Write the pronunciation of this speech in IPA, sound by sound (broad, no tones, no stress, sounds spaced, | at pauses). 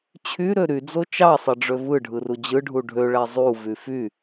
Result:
t͡ɕʰ y ɾ ø ɾ y d͡z o t͡ʃ ɑ sˤ e ɖ͡ʐ ø v ɯ ɖʱ ɯ r u d͡ʑ ɯ ɖʱ u ɖʱ ø ɭ æ zˤ u v y f y